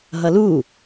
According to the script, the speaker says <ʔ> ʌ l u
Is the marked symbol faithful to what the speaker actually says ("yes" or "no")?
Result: no